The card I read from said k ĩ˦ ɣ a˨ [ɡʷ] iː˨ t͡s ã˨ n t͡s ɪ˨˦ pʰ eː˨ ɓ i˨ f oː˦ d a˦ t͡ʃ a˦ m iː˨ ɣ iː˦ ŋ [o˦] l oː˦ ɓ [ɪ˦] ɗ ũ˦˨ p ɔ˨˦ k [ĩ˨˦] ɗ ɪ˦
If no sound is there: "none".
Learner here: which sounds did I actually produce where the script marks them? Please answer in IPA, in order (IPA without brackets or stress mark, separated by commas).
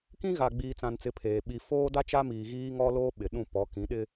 ɡ͡b, ɔ˦, ɪ˨, ĩ˨˦